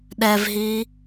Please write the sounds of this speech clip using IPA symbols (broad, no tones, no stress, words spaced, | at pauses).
ɗɛvɦiː